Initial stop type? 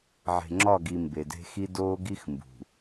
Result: click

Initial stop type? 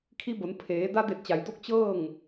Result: aspirated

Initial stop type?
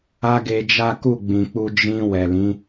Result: plain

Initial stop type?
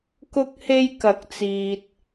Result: plain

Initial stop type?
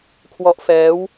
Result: aspirated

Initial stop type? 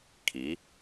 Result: aspirated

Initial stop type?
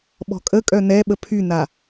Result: implosive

